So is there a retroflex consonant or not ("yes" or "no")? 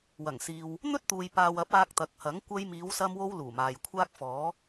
no